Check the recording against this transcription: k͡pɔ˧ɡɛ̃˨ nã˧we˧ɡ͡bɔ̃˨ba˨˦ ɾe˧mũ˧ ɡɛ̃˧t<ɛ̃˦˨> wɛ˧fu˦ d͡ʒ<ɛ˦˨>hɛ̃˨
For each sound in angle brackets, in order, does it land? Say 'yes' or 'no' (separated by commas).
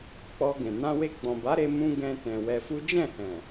no, no